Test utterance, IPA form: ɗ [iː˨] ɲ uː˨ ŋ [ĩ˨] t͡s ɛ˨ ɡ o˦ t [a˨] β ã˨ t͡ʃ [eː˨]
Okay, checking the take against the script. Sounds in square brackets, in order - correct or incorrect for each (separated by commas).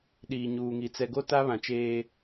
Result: correct, incorrect, incorrect, incorrect